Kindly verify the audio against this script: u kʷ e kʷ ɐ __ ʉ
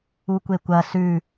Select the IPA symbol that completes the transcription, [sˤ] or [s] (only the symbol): s